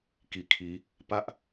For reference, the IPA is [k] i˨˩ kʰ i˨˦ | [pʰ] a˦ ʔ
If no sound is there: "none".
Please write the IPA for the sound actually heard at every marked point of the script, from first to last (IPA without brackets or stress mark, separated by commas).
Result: k, p